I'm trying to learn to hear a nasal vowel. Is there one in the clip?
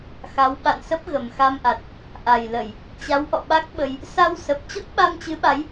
no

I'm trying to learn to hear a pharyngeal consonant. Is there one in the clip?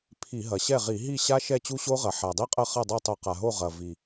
yes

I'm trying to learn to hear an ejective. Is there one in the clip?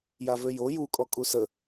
yes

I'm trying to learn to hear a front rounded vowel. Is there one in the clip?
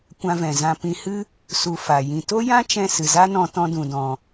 no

